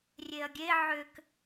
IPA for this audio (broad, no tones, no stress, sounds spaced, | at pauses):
rʲ e ɐ̯ ɡʲ e ʕ ʏ k